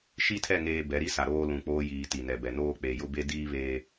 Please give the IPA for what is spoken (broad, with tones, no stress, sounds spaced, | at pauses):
ʃ i˦ tʰ ɛ˦˨ ŋ eː˦ b ɛ˨˦ ɾ i˦ s a˨ ɾ oː˦ l ũ˨ k͡p oː˦ j iː˨ t i˨ n ɛ˨ b ɛ˨ n oː˦ k͡p e˨ j ʊ˦ b e˦ d iː˦ β eː˨